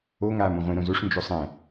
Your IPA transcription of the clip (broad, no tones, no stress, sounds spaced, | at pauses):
o ŋ aː m õ ʁʷ ĩ ɾ õ z o ʂ n d͡ʒ o sˤ ɛ̃